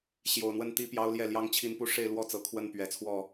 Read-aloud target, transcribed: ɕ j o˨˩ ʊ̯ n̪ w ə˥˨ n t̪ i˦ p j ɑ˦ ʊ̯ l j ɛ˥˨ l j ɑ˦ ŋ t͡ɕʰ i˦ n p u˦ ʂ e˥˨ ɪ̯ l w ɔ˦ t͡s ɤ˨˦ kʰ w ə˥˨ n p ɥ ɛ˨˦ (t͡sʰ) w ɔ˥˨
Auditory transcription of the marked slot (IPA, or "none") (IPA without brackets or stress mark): t͡sʰ